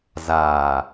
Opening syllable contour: low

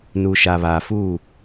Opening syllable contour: low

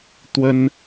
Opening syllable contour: high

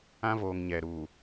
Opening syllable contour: high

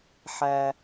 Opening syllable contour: low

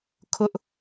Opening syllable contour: high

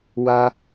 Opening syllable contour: high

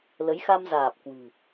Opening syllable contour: rising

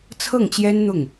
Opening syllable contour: falling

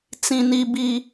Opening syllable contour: low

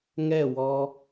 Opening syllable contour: falling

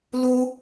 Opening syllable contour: high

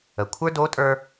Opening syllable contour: low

